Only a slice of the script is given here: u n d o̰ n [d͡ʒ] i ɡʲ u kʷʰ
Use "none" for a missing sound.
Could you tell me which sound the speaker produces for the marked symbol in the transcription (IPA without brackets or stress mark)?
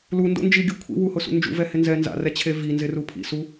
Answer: d͡ʒ